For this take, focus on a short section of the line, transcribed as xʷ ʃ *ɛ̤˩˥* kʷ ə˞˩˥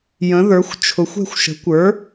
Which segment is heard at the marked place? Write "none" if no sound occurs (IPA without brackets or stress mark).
ə̤˩˥